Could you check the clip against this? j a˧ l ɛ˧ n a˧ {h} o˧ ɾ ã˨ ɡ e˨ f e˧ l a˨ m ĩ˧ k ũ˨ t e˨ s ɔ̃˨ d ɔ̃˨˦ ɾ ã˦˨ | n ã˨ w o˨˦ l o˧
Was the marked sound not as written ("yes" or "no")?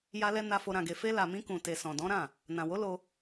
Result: yes